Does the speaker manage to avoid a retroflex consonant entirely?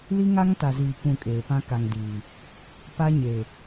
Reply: yes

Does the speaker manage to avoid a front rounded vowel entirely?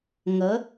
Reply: yes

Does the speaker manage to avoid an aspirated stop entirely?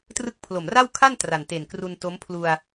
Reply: no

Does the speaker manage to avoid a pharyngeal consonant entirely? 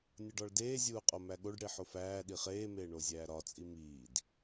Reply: no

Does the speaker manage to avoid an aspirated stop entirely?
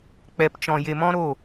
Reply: yes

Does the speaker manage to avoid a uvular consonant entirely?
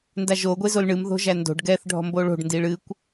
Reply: yes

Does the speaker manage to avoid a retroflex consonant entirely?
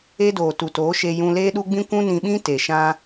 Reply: yes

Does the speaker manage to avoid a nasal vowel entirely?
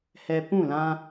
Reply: no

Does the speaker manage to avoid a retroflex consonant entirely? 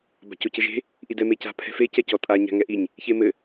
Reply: yes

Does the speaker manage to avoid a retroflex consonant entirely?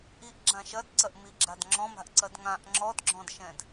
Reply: yes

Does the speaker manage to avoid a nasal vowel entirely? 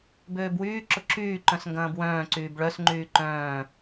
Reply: no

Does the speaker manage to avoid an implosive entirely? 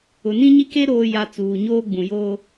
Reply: yes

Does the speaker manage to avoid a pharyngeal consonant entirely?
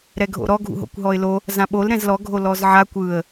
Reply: no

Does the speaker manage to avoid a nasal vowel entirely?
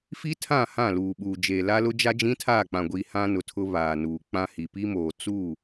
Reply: no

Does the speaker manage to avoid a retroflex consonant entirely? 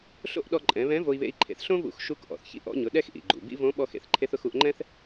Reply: yes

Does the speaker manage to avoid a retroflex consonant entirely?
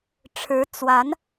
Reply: no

